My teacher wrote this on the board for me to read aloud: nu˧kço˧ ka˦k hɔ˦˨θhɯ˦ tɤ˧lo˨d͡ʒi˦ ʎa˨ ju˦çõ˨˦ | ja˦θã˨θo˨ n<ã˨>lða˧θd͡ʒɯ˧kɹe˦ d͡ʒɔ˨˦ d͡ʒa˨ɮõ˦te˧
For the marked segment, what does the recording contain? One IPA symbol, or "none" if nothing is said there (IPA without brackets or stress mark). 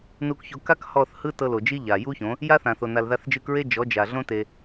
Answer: a˨